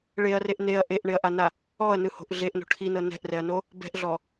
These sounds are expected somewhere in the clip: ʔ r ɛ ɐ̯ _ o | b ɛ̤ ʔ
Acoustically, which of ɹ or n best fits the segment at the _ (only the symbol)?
n